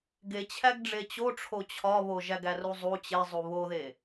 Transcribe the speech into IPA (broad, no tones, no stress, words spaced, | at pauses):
ɡe t͡ɕʰæɡɖ͡ʐet͡ɕoʈ͡ʂʰo t͡ɕʰɒβo ʒæɡæruzˤu t͡ɕezˤu βoðe